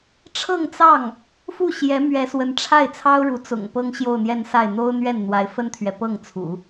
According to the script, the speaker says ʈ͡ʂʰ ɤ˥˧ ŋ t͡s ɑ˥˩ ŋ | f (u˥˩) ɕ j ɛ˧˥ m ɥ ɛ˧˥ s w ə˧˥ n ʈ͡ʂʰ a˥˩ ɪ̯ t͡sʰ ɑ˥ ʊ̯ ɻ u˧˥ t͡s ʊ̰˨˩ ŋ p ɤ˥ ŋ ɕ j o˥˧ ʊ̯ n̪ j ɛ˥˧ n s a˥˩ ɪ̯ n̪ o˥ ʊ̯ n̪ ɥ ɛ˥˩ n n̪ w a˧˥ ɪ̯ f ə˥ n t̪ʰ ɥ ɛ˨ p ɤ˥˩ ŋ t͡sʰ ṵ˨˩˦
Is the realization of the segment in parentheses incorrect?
no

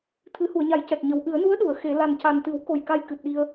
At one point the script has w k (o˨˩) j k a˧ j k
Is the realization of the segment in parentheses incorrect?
no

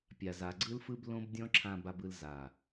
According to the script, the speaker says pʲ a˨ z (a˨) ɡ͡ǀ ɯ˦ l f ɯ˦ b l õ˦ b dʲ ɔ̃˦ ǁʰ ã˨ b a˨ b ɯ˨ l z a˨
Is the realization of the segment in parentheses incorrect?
no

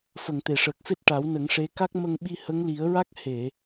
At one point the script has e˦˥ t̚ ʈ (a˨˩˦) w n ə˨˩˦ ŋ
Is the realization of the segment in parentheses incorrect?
no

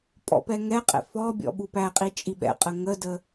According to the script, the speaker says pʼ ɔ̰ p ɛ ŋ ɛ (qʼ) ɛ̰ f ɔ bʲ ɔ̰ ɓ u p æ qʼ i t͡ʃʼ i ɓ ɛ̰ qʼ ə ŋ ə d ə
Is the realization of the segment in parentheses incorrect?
no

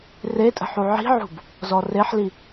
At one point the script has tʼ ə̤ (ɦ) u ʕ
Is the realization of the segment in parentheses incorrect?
yes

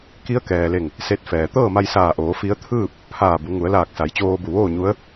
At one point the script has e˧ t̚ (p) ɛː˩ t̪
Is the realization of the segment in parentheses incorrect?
yes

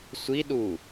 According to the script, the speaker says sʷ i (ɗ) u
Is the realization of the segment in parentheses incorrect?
no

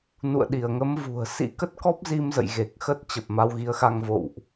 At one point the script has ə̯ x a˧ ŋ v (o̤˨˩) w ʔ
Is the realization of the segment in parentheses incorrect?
yes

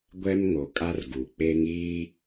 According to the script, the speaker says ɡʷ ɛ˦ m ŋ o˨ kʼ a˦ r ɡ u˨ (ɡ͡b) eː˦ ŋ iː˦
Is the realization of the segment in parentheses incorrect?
yes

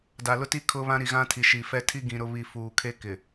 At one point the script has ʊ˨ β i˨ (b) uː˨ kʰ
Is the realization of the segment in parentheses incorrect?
yes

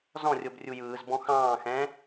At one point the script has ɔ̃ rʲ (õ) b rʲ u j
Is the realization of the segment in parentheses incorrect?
yes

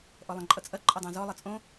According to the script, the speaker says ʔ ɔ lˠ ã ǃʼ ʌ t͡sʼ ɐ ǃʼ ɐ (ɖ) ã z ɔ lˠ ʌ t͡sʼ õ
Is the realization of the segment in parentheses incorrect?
yes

